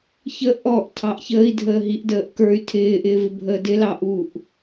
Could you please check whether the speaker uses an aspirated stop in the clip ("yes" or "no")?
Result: yes